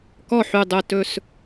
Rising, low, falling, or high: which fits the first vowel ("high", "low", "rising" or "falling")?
falling